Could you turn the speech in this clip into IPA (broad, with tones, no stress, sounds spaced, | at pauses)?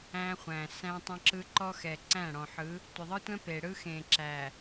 æ̃˦ χʷ æ̃˨ s æ̃˦ tˤ ə̃˦ ǁ ɯ˦ ǃ ɔ˦ x ɛ˨ ǀ æ̃˦˨ ɽ ɔ̃˨ ħ ɯ˨˦ | tʷ ə˨ ðˤ ɯ˦ tʷ ɛ̃˦ p e˨ ɽ ɯ˦ x ẽ˨ ǁ æ˨